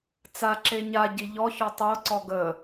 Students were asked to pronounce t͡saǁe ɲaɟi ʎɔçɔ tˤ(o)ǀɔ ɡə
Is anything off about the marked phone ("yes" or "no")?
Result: no